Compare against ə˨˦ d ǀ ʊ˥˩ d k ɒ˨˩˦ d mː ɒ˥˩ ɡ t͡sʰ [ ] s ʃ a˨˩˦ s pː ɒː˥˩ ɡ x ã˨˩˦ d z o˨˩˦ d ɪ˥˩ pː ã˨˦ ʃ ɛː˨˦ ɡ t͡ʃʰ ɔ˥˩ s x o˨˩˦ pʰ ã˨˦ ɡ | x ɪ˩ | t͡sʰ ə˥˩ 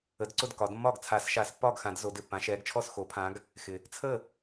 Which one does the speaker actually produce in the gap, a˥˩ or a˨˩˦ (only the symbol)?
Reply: a˨˩˦